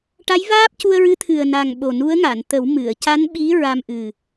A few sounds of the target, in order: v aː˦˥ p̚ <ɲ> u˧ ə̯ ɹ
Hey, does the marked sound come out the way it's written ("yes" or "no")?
no